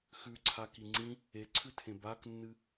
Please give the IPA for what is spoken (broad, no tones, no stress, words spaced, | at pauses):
xʉǀʰaki ŋ͡ǀĩ | eǀʰʉtʰẽ baknːɨ